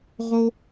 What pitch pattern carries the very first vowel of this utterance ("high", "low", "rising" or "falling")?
high